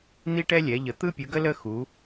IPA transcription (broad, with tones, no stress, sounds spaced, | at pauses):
n̪ i˥ ʈ ɛ˥ lʲ ɛ˨˦ ʎ ə˨˦ t̪ ɯ˥ pʲ ɯ˨˦ ɡ ə˥ l ə˥ x u˨˦